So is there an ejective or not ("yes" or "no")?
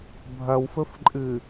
yes